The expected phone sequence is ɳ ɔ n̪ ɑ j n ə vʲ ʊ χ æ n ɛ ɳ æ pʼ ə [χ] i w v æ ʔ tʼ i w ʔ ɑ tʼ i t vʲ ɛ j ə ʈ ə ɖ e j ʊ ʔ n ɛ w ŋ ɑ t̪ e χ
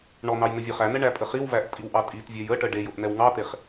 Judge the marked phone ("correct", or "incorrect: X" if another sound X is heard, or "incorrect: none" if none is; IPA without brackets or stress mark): correct